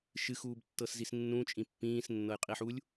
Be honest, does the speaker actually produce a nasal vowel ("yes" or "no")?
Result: yes